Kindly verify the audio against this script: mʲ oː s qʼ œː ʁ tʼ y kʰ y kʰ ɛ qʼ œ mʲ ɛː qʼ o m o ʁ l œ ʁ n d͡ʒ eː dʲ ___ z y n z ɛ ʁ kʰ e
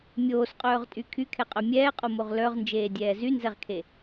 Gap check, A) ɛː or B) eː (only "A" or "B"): A